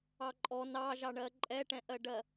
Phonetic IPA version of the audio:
ɑ ǃʼ ɔ n ɑ ʒ ɑ ɳ ɜ ǃʼ ɛ ʈ ɛ̃ ʔ ɜ ɖ ɜ

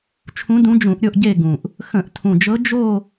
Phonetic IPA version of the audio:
t͡ʃʰ ũ˧˥ d ũ˧˥ d͡ʒ ũ˧˩˧ ʔ ɾʲ o˥˧ ʔ ɟ e˥˧ ɡ ũ˨˩ ʔ | x ə̃˧˩˧ ʔ tʰ ũ˨˩ d͡ʒ ɤ˧˥ d͡ʒ o˥˧

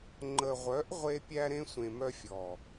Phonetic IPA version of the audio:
ŋ͡ǃ ə˨ ʁʷ œ˨˦ ʔ ʁʷ e˧ pʲ æ˧ ɾ ẽ˧ sʷ ẽ˨ m œ˧ fʲ ɔ˨

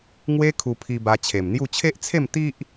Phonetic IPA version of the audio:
ŋ w e˦ kʰ u˧ pʰ i˧ b a˧ t͡ɕʰ e˨˩ m n̪ j u˥˧ t͡ɕʰ e˦ ʔ t͡sʰ e˥˧ m t̪ i˦ ʔ

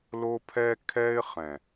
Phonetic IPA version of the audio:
l o˦ pʰ ɛ˦ kʰ ɛ˦ ɪ̯ χ ɛ̃˨

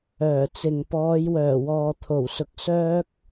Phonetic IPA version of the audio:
œː˨˩ t͡s ɪ˨ ŋ p ɔː˨˧ j w œː˨˩ w ɔː˨ t̪ʰ o˨˩ w s ʊ˧ k̚ s œː˥ k̚

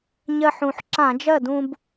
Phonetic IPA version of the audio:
ɲ ɜ˧ ħ ũ˨˩ ħ ǁ ã˧˩˧ d͡ʒ ɜ˥˩ d ũ˧ b

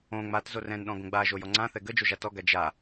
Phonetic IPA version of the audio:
õ ŋ͡m a t z o r ɛ̃ n ɗ ɔ̃ ɡ õ ɡ͡b a ʒ o j ɔ ŋ͡ǀ ã θ ɛ ɡ ə d͡ʒ o ʒ a t ɔ ɡ a d͡ʒ a

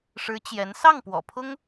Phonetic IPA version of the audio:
ʂ ɻ̩˧˥ t͡ɕ j ɛ˧˥ n s ɑ˥˩ ŋ p w ɔ̰˨˩ pʰ ʊ˥ ŋ

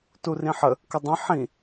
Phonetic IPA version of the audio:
t u r ĩ ħ ə | k ə dˤ ə̃ ħ ĩ

